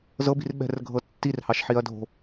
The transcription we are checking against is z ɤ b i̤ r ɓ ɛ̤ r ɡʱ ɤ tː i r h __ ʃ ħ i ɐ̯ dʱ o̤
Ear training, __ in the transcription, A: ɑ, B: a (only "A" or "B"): A